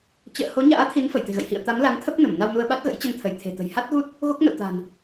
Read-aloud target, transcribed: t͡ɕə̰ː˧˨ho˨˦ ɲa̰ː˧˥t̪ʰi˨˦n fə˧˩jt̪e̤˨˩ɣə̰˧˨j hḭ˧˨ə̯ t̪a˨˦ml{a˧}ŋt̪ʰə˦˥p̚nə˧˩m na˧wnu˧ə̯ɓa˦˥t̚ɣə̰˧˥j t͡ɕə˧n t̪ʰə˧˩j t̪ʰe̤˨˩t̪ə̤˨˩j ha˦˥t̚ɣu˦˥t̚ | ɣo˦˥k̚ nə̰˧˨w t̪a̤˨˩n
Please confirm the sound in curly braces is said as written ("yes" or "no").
no